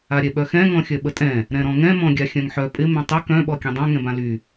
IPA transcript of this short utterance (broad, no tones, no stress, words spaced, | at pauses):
aɾʲɛɓœxɛ̃ ŋɔ̃xʲœɓətʼɛ̃ | ɾɛ̃ɾɔ̃ŋɛ̃ mɔ̃ɡʲaxʲœ̃ŋħœ pʼɪ mɛ̃tˤɪ kœ̃ ɓɔkʲɛ̃dˤœ̃ ŋɛ̃bãly